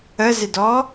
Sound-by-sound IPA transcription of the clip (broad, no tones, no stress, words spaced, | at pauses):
əzɪdɔ